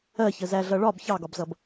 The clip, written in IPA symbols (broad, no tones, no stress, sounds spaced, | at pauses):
ɜ ç ə z æ ɮ ʌ ɭ ɒ b ç ɑ ɡ ɒ b z ʌ b